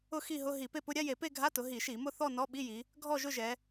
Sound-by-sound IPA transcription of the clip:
ʊ˥˧ x i˥˧ ɦ ʊ˧˥˧ ɦ i˧˩˧ p e˥˧ p ʊ˧˥˧ ɾʲ a˧˥˧ j e˧˩˧ p e˥˧ ɡʱ a˧˥˧ t ʊ˩˧ ɦ i˧˩˧ ʃ i˧˩˧ m ʊ˥˧ θ ɔ˥˧ n ɔ˧˥˧ ɓ i˧˥˧ j i˩˧ | ɡʱ ɔ˥˧ ʒ ʊ˥˧ ʒ ɛ˩˧

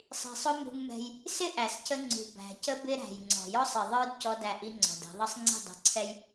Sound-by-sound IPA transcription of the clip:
sˤ i̤˨ sˤ ʊ˦ m ṳ˦ ŋ m ɛ̤˦ j | s ɪ˦ ʔ æ˨ s c ə˦ ŋ͡ǀ ṳ˨ b æ̤˨ c ə˦ b ɪ˦ ɾ æ̤˨ j ŋ͡ǀ ɔ̤˨ j ɔ˦ sˤ i˨ ðˤ ə˞˦ d c ɔ˦ d æ˦˨ ʔ i˦ ŋ͡ǀ ɔ̤˨ d ɛ̤˨˦ ðˤ ʌ˦ sˤ ŋ͡ǀ i̤˦˨ dˤ ṳ˨ ǀʰ ɛ˦ j

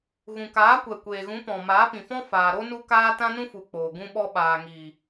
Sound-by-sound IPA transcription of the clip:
ɣ ũ˨ k aː˨˦ kʷ ɛ˨ kʷ eː˨ ɣ ũ˨˦ p ɔ̃˨ m aː˨˦ p ĩ˨ f ɔ̃˦ f aː˨ ɾ o˦ n u˦ k aː˦ t ã˦ n ũ˦ f u˨ k͡p oː˨ ɡ ũ˦ ɓ ɔ˧ ɓ aː˨ ŋ iː˨

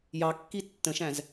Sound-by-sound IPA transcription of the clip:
j ɑ kː i tː ə̃ ʃ æ̃ z

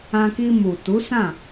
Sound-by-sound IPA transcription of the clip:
ã˧ k i˧ m u˨ t u˨˦ s ã˦˨

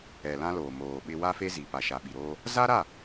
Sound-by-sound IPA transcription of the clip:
ɛ˨ l ã˦ l oː˨ m oː˨ ɓ ɪ˦ w a˦ f e˦ z i˨ p a˨ ʃ a˨ ɓ i˨ ɾ oː˦ | z a˦ ɾ a˦˨

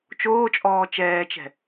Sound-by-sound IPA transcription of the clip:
t͡ʃ oː t͡ʃʼ ɔː t͡ʃ ɛː t͡ʃ ɛ̤

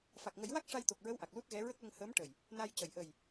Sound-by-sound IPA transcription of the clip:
f a˨˩ k̚ ŋ ə˨˩˦ j w a˦˥ k̚ ʂ a˧ j t̪ o˨˩ k̚ ɹ ə˧˥ w ʔ a˨˩ k̚ l u˦˥ t̚ ɣ ɛ˧˥ ɹ ə˦˥ k̚ l ə˧ ŋ h əː˧˥ m ʈ ə˨˩ j | n a˧ j c ə˨˩˨ j ʔ ə˨˩ j

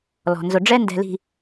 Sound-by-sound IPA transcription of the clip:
l ɔ̤˨ n z ʊ˨ ɖ͡ʐ ɛ˦ n d ɛ̤˨ l i̤˨

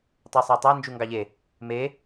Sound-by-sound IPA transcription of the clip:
tˤ ø sˤ æ tˤ æ n d͡ʒ u ŋ ɡ ɑ ʎ e | m e

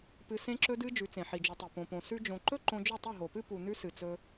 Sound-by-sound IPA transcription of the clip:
p ɨ˧ s ẽ˦ ǁ ɵ˦ d ɨ˦ d͡ʒ ʉ˨˦ t͡s ẽ˨ ħ i˨ d͡ʒ u˨ tˤ e˨ p õ˨ p õ˨ s ʉ˧ d͡ʒ õ˨ ǃ ɵ˦ ǃ õ˧ d͡ʒ ɵ˦˨ tˤ ɵ˦˨ ɦ o˨ p ɨ˦ p u˨ n ʉ˧ s ɨ˨ t͡s ɵ˧

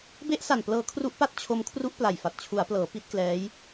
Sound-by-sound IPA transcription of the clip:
b e˦˥ ʔ s a˨˩ n p l ɤː˧ kʰ r u˦˥ ʔ p a˥˩ t̚ t͡ɕʰ o˦˥ m kʰ r u˦˥ ʔ p l a˨˩ j f a˨˩ t̚ t͡ɕʰ u˩˦ a̯ p l ɤː˩˦ p i˦˥ t̚ k l ɛː˦˥ j

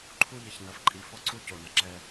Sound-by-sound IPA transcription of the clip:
ǃʰ u˦ ʎ ə˨ ç n ɐ˨ f ǃʼ i˨ f ɔ˦ ǀ u˦ c o˨ n ɐ˨ ǁ ɛ˦

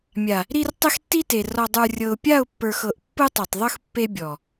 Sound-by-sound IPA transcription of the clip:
mʲ a˨ | ɾ i˨ r tˤ e˦ x tː i˦ t e˨ r ɔ˨ dˤ ə˞˨ rʲ ɤ˨ ʊ̯ pʲ a˦˨ ʊ̯ pː ə˞˨ x ɤ˨ ʔ pː ɯ˦ tˤ e˨ tˤ ðˤ ɯ˦ x pː e˦ bʲ ɔ˨

